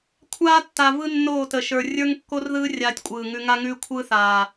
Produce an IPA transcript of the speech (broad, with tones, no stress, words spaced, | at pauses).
kʷʰaː˦tːa˨ vɯ˦nːoː˦˨tə˨ʃə˞˨ rʲə˞˦ŋkːo˦rðɯː˦ rʲaː˦tʲkʷʼɯː˨ŋʉ˦ ŋa˦ŋʉː˦kʷʰɯː˦ θaː˨